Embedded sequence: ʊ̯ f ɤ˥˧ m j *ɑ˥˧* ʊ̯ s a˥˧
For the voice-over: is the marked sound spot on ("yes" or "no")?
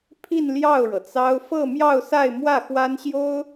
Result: yes